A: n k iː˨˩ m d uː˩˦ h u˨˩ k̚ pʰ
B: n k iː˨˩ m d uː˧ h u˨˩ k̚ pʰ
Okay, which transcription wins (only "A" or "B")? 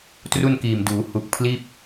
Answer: A